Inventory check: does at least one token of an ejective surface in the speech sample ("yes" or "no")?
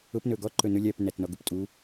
yes